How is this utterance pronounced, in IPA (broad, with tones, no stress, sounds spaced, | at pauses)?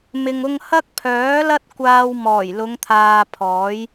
m ɪ˨ ŋ ʊ˧ ŋ h ɐ˥ k̚ pʰ œː˨˥ l ɐ˥ t̚ kʷ aː˥ w m ɔː˨˩ j l ʊ˨˧ ŋ t̪ʰ aː˨ pʰ ɔː˨˥ j